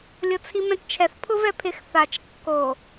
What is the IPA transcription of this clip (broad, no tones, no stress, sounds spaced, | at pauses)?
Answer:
lʲ o t͡sʰ i m ɛ̃ t t͡ʃʰ ɛ θ pʰ ʊ v ɛ pʰ ɪ x θ a t͡ʃ kː o